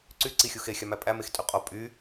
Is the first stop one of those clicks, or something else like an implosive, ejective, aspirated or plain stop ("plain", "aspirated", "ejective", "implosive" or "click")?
click